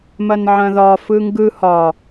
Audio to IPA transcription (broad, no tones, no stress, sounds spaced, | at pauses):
m ɐ n ʕ ɐ̃ ð ɒ f ɯ ŋ ɡ ɯ h ɒ